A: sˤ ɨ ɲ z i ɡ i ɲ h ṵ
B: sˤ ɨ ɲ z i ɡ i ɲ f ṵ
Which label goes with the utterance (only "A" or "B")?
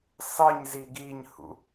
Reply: A